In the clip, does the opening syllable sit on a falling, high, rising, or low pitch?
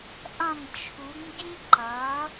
falling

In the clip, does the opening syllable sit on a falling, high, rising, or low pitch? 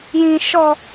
low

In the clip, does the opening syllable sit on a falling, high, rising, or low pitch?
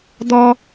high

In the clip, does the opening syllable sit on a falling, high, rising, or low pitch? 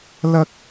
high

